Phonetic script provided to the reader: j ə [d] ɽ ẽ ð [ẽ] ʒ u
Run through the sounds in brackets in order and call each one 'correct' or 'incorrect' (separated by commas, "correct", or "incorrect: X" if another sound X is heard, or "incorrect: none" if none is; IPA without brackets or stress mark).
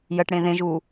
incorrect: ʈ, correct